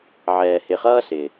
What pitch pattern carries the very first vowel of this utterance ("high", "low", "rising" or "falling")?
low